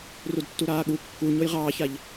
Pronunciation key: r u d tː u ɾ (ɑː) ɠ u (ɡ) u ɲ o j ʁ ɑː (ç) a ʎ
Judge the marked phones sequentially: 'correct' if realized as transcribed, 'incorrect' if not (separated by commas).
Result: incorrect, incorrect, correct